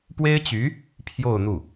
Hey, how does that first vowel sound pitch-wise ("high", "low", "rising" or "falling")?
high